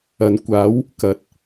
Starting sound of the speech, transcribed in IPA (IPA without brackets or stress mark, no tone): ɐ